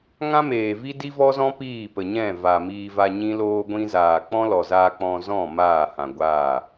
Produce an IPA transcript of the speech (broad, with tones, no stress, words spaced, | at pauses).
ŋã˦meː˨vi˦ di˦vɔ˦zɔ̃˦ piː˦˨pə˨ɲɛ̃˦˨va˨ miː˧va˧ɲĩ˦loː˦ ɡʷĩ˧zaː˨ k͡pɔ̃˦lɔ˨zaː˧ k͡pɔ̃˧zɔ̃˦˨ maː˦˨hã˨ ɡʷaː˦˨